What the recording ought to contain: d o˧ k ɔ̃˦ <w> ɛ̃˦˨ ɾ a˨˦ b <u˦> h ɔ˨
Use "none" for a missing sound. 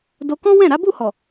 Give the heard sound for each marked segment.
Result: w, u˦˨

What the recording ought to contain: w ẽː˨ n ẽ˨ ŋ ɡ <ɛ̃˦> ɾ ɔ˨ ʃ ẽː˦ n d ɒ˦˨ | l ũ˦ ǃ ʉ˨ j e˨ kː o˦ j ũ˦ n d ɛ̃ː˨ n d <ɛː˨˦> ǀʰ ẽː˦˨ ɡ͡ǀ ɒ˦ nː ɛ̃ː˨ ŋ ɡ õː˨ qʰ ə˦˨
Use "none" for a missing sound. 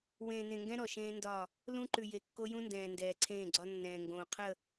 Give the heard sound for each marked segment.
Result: ɛ̃˦, ɛː˨

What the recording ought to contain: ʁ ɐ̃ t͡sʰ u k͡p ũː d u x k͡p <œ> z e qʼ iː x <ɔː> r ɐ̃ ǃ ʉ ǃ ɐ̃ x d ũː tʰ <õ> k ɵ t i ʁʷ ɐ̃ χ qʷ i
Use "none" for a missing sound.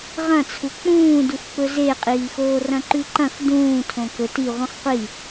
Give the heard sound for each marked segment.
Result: ɵ, oː, õ

